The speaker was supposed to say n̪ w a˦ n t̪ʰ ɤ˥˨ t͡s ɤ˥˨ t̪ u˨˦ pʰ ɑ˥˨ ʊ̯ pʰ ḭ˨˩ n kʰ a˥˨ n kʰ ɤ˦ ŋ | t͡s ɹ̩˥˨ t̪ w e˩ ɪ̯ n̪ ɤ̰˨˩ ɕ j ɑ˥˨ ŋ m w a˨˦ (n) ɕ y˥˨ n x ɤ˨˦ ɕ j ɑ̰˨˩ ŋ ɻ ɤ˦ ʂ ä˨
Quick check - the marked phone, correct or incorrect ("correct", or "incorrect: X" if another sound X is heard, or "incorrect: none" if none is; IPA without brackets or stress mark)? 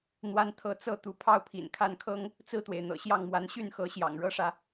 correct